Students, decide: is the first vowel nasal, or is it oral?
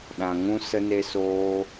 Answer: nasal